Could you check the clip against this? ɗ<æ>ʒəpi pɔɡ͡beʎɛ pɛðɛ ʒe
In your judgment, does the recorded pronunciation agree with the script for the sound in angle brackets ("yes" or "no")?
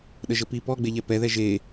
no